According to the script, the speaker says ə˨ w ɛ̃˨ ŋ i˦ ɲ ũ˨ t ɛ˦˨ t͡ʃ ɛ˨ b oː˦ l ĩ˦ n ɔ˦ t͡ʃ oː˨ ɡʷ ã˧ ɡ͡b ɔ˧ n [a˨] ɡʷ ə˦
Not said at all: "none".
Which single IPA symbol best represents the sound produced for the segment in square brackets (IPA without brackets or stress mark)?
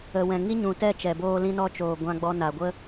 a˨